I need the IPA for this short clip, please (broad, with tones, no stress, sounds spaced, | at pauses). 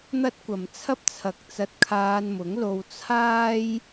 n̪ ɐ˥ t̚ kʷ ɐ˨ m t͡sʰ ɐ˥ p̚ t͡sʰ ɐ˨ k̚ t͡s ɐ˧ t̚ kʰ aː˧ n m ʊ˨˥ ŋ l o˧ w t͡sʰ aː˥ j